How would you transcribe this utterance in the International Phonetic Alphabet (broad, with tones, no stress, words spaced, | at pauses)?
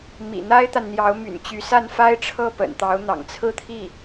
mḭ˨˩n̪a˥ɪ̯t̪a˨nn̪jɑ˧˥ʊ̯ my̰˨˩nt͡ɕy˧˥sa˥˩nfa˥ɪ̯ ʈ͡ʂʰɤ˥˩pə̰˨˩nt̪ɑ˧˥ʊ̯ n̪ɑ̰˨˩ŋt͡sʰɹ̩˥˧t̪ʰi˥˩